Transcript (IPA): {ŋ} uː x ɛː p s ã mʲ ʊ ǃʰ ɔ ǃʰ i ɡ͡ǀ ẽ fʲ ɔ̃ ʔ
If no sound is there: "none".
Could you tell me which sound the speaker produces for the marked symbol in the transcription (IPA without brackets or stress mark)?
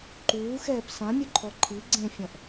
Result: ǃ